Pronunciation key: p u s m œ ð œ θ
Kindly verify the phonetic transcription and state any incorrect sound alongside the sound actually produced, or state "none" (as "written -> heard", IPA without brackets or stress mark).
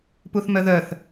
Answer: s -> θ